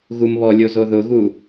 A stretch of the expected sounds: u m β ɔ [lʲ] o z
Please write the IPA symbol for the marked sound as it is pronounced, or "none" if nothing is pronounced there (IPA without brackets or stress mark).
lʲ